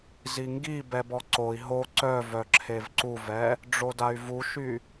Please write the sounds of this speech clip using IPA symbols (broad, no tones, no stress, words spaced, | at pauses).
ziŋɡi bɛbɔǀoi̯ ɦo ǀœ vœǁʰevǀuvɛ | ɖ͡ʐoday̯vuʃy